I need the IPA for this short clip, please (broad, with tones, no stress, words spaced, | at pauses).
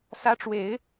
sä˧˥ʈ͡ʂwe˨˩˦ɪ̯